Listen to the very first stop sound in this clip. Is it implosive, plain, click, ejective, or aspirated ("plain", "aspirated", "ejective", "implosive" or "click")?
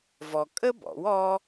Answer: ejective